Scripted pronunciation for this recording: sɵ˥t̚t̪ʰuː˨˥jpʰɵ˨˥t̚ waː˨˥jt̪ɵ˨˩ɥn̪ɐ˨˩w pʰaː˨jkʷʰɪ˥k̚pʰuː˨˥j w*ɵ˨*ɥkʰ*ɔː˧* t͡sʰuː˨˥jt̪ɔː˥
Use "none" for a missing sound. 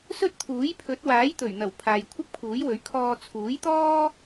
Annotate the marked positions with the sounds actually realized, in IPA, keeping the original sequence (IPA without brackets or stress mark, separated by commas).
ɵ˨˥, ɔː˧